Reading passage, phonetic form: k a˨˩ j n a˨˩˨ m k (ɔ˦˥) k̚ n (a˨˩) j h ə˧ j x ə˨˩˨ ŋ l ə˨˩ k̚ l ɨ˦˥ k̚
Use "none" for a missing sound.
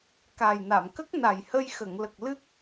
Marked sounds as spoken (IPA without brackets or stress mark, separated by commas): ə˦˥, a˨˩